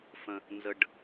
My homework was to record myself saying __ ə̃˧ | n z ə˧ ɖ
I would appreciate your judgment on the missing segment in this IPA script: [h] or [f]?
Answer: f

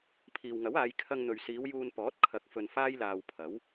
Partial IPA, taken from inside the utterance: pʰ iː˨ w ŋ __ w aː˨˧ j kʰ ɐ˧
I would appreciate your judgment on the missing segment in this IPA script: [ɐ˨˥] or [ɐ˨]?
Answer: ɐ˨˥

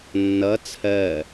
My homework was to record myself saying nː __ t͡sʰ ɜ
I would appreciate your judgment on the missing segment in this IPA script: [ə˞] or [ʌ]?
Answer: ʌ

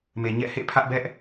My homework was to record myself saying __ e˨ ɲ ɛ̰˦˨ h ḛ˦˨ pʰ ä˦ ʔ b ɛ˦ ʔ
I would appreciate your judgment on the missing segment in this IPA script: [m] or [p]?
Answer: m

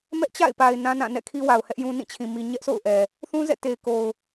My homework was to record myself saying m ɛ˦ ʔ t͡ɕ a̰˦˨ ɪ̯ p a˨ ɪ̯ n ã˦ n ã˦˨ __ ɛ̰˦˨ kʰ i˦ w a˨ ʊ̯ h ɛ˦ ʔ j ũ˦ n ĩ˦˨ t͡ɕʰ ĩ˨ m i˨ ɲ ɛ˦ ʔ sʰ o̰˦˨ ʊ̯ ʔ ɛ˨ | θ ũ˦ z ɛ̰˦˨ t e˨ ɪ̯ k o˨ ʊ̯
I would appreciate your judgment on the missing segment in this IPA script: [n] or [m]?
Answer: n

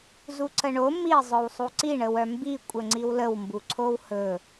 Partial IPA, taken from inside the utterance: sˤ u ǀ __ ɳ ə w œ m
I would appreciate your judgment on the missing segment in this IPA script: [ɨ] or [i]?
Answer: i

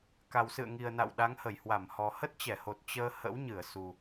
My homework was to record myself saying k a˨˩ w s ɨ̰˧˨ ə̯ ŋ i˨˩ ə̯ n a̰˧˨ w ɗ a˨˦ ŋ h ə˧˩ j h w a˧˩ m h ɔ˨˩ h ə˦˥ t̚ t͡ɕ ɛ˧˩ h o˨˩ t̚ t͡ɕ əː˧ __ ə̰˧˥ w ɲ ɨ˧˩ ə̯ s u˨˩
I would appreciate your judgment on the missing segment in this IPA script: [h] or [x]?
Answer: h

